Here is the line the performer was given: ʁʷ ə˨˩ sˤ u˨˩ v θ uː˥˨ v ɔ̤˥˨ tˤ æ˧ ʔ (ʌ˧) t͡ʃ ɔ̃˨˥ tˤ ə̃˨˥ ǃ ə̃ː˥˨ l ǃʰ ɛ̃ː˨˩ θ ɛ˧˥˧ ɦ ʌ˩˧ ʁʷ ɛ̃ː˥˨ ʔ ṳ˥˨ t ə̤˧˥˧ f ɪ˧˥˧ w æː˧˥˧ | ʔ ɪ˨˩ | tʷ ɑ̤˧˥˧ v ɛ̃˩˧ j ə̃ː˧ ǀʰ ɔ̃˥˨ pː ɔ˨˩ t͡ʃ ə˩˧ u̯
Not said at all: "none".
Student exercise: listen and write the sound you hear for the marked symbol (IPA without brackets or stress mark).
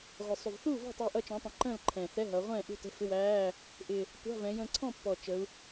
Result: ʌ˧